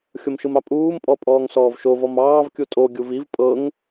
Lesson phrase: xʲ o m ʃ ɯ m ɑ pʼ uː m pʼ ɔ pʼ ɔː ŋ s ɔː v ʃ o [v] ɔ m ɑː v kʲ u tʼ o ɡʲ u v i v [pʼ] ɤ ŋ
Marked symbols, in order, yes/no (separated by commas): yes, yes